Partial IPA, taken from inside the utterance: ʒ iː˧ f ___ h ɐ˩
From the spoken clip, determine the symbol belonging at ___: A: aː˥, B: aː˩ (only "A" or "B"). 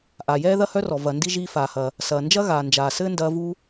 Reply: B